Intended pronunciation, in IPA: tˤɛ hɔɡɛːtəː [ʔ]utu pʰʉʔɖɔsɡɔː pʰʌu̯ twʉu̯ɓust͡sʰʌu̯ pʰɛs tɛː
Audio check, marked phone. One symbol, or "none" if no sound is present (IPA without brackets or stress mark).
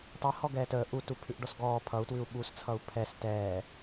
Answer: ʔ